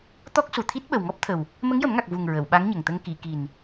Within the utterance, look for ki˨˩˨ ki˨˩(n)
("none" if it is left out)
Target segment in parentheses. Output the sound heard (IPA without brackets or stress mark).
n